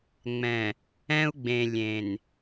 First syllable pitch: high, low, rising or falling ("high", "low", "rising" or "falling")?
low